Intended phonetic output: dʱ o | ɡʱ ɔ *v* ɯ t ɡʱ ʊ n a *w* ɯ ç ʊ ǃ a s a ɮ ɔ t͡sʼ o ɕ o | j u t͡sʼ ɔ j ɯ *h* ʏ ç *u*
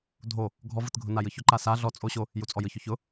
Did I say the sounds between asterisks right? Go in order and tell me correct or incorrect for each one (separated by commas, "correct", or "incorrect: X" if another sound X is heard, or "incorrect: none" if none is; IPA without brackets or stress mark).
correct, incorrect: j, incorrect: ç, incorrect: ʊ